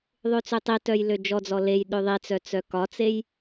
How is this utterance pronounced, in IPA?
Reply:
ðˤ ø t͡s ø tˤ i t œ j l ø d͡ʒ ɔ d͡z ɔ l e j ɗ ø ðˤ i t͡s œ t͡s œ k ɒ t͡s e j

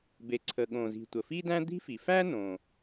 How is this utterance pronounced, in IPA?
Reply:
b e˩ ǀʰ ə˩ ɠ õ˩ z i̤˩ tʷ ə˩ f i˥ d æ̃˥ d̪ i̤˥ f i˩ f æ˥ n õ˩

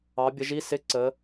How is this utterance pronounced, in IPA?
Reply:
ɑ˨˦ bʲ ə˨˦ ʒ i˧˥˧ s ɪ˧˥˧ ǀ ə˨˦

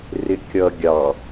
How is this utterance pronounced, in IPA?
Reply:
r ɪ kʲ ʌ ɡʲ ɑ

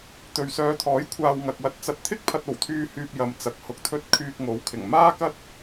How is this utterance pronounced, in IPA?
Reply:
t̪ ɵ˨ ɥ s œː˨˧ t̪ʰ ɔː˨˥ j kʷʰ aː˧ w ŋ ɐ˨ k̚ w ɐ˧ t̚ t͡s ɐ˧ t̚ t̪ʰ ɪ˥ k̚ pʰ ɐ˧ t̚ o˨˩ w t̪ʰ yː˧ h yː˧ p̚ j ɐ˨ m t͡s ɐ˨ k̚ h ʊ˨˥ k̚ t̪ʰ ɵ˧ t̚ kʰ yː˧ k̚ ŋ o˨˥ w kʰ ɪ˨˩ ŋ m aː˥ k ɐ˥ t̚

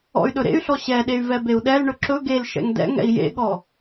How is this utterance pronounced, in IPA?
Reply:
ɔ̰ y̯ ɗ ɵ ɾ ḛ y̯ ɬ ɔ ɕ ɛ ɗ e y̯ v ɛ b e u̯ ɗ ɛ l ɳ ɵ ǁ ɵ ɡ e l ʃ ɛ̰ ŋ d ɛ̰ ŋ ɛ̰ i̯ j ḛ ɠ ɔ

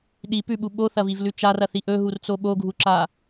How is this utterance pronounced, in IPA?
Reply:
ɗ i p ʉ ɓ u ɓ o θ ɐ v i v l ʉ t͡ʃ a r ɐ θ i ʔ ɵ ɦ u r t͡s o ɓ o ɡʱ u ǁ a

